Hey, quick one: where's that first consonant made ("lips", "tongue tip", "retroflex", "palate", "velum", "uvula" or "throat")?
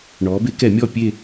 retroflex